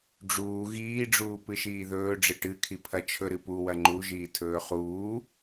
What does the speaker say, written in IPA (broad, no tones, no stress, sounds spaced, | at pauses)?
ɖ͡ʐ uː ɣ iː ɖ͡ʐ uː p ɨ ʃ iː ð ɵː ɖ͡ʐ ɨ ʈ ɨ kʰ i pʰ ɐ t͡ʃʰ ɵ ɾ ɨ p u w ɐ ŋ͡ǃ u ʒ iː tʰ ɵː χ uː